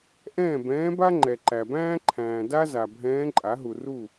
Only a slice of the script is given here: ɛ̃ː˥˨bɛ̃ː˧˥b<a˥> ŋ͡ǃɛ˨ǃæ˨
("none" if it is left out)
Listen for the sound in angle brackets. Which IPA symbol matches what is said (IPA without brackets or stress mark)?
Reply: a˥